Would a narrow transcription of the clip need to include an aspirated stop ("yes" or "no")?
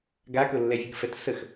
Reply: no